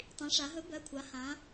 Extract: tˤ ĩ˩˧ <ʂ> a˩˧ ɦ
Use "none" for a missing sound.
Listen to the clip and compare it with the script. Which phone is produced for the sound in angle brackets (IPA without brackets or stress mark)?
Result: ʂ